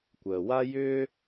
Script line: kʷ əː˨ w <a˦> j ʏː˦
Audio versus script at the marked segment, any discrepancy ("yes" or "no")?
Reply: no